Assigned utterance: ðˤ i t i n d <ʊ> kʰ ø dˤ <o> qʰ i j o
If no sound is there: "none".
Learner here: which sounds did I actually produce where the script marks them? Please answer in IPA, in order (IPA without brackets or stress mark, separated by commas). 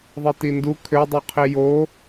u, u